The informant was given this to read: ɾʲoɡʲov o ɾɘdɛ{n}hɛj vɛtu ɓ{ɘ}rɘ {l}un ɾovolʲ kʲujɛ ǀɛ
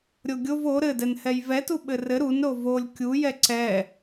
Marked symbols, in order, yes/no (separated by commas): yes, yes, no